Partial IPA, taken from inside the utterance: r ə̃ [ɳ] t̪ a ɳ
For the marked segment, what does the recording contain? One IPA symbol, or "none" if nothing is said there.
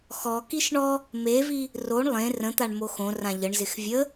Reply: none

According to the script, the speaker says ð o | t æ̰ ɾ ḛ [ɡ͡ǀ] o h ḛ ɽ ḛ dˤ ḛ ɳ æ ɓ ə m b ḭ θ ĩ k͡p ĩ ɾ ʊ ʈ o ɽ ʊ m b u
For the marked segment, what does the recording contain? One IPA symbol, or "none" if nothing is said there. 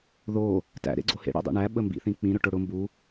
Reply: ɡ͡ǀ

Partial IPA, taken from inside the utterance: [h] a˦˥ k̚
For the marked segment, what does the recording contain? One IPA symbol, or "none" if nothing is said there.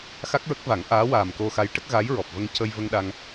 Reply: x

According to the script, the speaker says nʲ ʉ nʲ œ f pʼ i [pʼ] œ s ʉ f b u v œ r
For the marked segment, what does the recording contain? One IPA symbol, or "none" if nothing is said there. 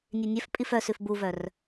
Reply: f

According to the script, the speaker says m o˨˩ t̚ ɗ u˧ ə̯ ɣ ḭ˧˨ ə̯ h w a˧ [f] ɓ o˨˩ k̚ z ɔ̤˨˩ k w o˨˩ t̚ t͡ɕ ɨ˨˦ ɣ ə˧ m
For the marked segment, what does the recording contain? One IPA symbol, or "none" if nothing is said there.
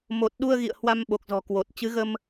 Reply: m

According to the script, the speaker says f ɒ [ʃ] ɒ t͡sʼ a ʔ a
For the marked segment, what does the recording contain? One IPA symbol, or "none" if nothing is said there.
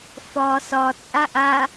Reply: s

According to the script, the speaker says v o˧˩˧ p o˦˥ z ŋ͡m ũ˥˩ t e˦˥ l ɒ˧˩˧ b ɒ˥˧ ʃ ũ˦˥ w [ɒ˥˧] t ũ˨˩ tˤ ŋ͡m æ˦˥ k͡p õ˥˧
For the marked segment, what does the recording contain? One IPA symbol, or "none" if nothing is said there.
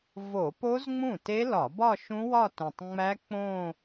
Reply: ɒ˥˧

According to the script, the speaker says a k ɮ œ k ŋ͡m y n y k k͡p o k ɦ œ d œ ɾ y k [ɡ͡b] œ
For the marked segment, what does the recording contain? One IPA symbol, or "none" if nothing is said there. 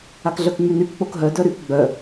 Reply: ɡ͡b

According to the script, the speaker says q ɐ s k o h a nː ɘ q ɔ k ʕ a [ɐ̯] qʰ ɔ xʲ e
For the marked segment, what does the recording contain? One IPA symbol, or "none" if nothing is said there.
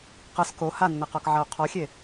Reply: o̯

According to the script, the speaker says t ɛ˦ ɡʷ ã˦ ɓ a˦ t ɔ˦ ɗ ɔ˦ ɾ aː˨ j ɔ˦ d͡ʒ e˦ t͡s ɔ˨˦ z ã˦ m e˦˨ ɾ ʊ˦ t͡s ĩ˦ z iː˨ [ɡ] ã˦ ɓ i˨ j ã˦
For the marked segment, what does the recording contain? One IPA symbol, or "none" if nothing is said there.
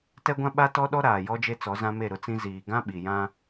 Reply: ɡ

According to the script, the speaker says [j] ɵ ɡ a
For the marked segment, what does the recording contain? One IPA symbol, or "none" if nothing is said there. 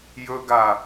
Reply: j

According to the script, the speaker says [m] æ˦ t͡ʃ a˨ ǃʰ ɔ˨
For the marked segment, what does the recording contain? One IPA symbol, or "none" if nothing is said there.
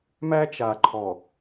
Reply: m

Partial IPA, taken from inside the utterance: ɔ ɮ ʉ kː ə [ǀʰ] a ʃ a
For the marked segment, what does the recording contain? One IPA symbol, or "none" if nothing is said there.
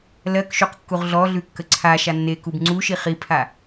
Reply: ǀʰ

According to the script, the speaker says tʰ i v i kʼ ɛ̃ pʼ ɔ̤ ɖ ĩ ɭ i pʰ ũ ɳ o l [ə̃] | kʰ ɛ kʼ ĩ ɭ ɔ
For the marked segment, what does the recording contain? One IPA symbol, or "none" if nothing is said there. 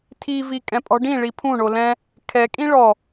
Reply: ɛ̃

